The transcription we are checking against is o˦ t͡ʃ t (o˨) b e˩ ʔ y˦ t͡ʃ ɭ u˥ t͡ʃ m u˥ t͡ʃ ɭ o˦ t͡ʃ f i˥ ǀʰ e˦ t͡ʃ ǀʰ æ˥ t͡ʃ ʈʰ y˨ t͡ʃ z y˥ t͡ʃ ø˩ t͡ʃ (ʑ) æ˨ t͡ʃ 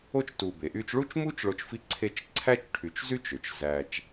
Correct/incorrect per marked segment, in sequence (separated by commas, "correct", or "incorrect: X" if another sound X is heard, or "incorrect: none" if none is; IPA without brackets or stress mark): incorrect: u˨, incorrect: z